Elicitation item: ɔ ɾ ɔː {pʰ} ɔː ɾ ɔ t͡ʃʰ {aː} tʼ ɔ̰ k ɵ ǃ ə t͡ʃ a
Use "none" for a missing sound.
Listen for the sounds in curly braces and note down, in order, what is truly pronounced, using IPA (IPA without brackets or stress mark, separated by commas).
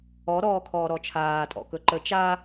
kʰ, aː